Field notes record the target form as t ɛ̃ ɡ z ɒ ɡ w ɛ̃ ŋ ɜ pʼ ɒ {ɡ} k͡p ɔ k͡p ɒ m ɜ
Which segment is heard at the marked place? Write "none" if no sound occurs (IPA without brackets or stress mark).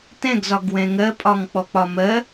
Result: ŋ